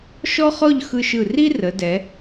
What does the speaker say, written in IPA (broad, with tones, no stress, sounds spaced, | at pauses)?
ʃ ɔ˥ χ ɔ˥˧ ʎ x ɯ˧ ʃ ɯ˧˩ r i˥ r ə˩˧ d ɛ˩˧